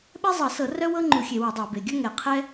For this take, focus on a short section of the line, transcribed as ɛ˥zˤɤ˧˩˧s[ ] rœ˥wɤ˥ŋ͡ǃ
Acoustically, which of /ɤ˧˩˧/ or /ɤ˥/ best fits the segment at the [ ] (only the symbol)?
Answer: ɤ˧˩˧